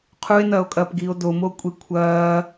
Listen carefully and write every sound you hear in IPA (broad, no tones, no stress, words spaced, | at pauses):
qʰue̯nɐːo̯kʼɐːpɡiːo̯ domokʷʼe kʷʰɐː